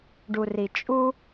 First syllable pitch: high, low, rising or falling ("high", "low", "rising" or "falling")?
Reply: low